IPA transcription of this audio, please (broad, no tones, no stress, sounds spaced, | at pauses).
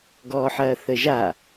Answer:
ɡ ɔː ħ ɐː θ ə ʒ a